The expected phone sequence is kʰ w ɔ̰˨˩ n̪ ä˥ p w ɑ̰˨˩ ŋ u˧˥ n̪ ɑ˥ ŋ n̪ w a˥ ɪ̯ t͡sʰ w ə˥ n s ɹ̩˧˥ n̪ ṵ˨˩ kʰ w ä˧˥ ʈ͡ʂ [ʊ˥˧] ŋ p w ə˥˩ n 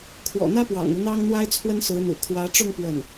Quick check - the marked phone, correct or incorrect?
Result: correct